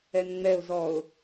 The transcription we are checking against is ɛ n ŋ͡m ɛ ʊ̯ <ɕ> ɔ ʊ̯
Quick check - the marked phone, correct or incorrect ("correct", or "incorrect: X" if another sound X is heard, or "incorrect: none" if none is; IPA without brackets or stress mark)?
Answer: incorrect: z